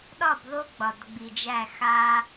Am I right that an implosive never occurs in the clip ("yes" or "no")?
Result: no